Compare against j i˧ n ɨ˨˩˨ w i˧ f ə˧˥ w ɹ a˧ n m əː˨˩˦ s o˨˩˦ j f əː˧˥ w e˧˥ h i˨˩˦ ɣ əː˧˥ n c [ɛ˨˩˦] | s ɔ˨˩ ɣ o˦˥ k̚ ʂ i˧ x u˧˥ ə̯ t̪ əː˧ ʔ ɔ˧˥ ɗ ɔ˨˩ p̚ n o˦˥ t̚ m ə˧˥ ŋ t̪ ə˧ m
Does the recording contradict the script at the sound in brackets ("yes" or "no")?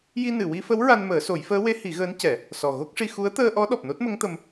no